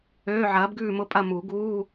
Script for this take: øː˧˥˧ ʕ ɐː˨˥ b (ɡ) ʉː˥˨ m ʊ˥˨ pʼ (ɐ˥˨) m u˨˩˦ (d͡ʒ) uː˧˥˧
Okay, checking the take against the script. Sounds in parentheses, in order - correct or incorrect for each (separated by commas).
correct, correct, incorrect